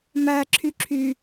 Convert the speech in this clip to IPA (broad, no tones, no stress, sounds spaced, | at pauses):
m æ ǁʰ y ǁʰ y